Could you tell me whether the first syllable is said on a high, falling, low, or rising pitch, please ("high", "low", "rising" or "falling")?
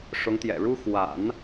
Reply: rising